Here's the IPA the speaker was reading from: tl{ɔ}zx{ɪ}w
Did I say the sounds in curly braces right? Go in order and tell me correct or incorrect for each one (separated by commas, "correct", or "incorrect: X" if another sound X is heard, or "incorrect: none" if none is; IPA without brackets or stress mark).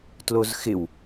incorrect: o, correct